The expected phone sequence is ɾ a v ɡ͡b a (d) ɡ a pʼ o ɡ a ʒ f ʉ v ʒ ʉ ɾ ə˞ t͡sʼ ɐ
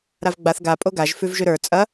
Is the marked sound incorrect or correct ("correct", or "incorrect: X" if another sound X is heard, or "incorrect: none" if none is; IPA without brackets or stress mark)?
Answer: incorrect: θ